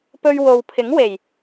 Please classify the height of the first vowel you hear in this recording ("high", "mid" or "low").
mid